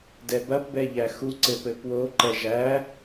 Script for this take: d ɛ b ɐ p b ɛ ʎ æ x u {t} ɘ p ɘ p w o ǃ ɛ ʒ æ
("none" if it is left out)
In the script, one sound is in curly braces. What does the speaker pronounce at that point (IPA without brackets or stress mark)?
ǀ